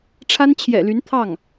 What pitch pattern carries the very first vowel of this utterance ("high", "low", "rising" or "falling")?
high